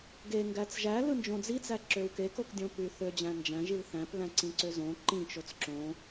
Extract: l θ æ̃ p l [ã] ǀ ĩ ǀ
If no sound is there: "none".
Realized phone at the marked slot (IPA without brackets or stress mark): æ̃